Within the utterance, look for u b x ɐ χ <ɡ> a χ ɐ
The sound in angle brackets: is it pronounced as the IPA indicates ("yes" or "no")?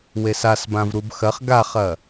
yes